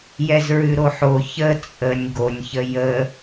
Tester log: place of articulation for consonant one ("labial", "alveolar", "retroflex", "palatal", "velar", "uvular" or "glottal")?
palatal